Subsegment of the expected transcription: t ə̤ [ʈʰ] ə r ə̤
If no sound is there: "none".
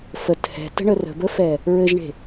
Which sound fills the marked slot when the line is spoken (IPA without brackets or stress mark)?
ɳ